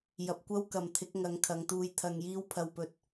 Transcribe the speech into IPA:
jɐ˨˥p̚kʷɐ˥wkɐ˨mt̪ʰɪ˨˥k̚ ŋɐ˨˧ŋ kʰɐ˨˧ŋt̪uː˧jt̪ʰɐ˧ŋjiː˥w pʰɐ˧wpɵ˧t̚

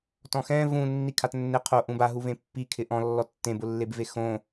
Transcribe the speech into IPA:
tɔ̃xɛ̃ vũ nːikʰatnːɪ qʰo ʔũba ɦuvẽpːi kʰɪʔɔ̃ lːɔtːẽbʊ lːebvexõ

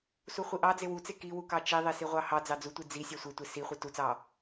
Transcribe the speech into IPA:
suχʷiʔɑ d͡zewut͡se kiwukɑ t͡ʃiðˤi siʁʷɑhɑd͡zɑ d͡zutʷi d͡zi sʲɑsʷetʷe si χʷitut͡sɑ

